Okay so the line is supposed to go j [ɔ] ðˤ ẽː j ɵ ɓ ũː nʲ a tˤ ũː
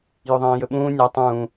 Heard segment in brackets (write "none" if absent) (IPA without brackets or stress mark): ɵ